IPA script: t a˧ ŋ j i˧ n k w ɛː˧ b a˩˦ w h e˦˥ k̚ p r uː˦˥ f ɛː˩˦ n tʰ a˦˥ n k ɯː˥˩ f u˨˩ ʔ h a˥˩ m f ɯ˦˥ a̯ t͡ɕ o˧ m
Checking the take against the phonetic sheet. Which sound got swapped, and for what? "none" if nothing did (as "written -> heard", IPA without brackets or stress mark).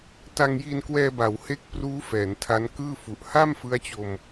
none